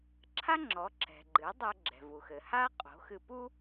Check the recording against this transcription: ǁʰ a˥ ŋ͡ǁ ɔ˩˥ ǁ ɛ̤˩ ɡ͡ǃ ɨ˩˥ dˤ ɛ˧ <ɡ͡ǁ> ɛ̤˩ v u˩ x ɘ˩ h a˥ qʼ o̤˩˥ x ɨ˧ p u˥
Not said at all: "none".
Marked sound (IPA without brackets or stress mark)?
ɡ͡ǁ